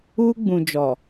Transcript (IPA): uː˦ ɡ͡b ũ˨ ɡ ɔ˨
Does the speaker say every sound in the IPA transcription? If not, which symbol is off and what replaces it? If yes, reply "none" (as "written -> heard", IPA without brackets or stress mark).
ɡ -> d͡ʒ